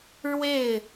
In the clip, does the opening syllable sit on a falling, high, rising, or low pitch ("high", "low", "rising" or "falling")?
falling